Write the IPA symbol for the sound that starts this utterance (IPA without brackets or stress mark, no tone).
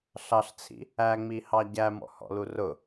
ɬ